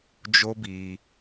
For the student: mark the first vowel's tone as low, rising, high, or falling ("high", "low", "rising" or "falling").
high